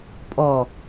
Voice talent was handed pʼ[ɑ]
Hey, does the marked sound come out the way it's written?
no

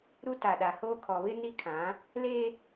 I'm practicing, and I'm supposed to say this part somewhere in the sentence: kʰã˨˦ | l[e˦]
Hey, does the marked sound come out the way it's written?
yes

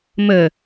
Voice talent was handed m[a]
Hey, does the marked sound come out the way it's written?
no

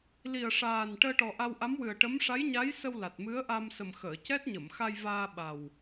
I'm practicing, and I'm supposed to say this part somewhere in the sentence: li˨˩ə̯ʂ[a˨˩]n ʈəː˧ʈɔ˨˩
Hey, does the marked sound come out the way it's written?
no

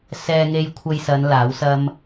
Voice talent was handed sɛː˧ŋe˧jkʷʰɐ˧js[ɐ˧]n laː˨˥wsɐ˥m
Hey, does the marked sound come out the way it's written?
no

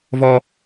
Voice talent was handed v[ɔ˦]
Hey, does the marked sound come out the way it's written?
yes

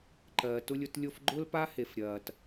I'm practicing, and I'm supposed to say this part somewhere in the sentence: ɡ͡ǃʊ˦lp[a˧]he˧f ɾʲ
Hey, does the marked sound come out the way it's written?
no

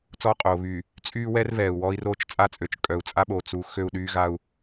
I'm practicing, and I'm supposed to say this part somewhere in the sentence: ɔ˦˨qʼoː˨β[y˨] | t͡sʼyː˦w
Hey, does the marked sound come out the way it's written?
yes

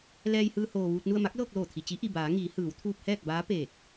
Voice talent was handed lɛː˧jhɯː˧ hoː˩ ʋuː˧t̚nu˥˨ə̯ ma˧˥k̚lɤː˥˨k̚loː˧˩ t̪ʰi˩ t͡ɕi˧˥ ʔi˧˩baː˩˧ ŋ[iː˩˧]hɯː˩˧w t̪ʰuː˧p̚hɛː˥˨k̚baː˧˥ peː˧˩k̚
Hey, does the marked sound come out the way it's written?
yes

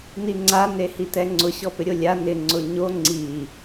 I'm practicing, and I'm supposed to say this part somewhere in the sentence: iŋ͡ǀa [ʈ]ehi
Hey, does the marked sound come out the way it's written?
no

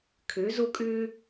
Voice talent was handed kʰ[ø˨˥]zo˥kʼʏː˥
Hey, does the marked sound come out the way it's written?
yes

